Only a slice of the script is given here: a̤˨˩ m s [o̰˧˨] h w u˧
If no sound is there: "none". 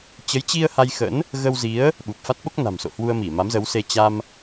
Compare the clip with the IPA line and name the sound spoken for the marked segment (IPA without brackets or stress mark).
o̰˧˨